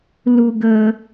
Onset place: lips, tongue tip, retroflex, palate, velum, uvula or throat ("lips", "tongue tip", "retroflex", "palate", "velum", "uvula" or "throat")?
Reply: tongue tip